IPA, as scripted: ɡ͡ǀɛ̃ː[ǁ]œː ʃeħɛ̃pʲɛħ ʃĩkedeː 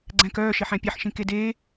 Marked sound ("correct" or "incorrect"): incorrect